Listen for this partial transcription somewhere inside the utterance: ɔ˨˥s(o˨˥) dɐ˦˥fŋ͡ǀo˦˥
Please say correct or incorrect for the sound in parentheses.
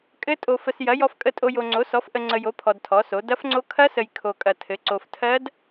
correct